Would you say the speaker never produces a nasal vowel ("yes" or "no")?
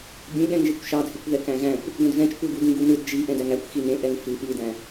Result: no